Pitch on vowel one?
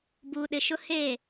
low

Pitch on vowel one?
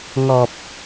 low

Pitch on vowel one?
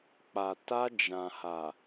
low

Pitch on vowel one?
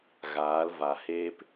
rising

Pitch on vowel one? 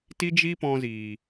high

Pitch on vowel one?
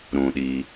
low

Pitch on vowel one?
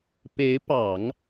rising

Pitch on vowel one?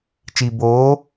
low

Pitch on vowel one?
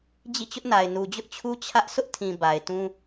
falling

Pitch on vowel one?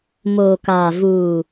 low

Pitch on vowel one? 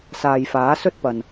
low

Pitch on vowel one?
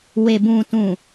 low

